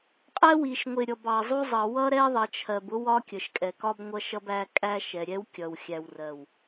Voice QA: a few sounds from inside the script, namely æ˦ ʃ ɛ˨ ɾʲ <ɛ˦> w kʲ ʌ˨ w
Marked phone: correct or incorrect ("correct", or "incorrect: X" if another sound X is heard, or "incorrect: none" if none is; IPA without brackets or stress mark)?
correct